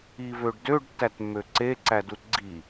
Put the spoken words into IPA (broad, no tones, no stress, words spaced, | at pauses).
ivøɖdøɖ tːætmːøǀe ǀædutɡ͡ǀi